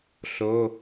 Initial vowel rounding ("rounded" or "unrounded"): rounded